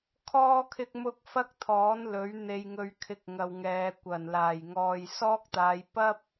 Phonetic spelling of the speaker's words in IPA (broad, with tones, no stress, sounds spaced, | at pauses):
kʰ ɔː˥ kʰ ɪ˥ k̚ m ʊ˥ k̚ f ɐ˥ k̚ t̪ʰ ɔː˨˥ n l ɵ˨˥ ɥ n̪ e˧ j ŋ ɵ˧ ɥ kʰ ɪ˧ k̚ ŋ ɐ˨ w ŋ ɛː˨ kʷ ɐ˨˩ n l aː˨˩ j ŋ ɔː˨ j s ɔː˥ k̚ t̪ aː˨˧ j p ɐ˥ p̚